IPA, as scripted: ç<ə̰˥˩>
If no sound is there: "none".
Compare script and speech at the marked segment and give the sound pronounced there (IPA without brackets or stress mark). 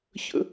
ə̰˥